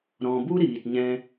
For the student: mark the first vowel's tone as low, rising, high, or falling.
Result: low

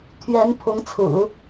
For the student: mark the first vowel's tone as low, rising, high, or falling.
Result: rising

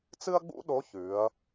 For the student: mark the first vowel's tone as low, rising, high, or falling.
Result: high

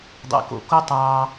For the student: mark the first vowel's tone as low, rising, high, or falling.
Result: low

